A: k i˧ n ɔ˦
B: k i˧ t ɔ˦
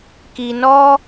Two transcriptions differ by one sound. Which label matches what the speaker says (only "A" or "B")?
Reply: A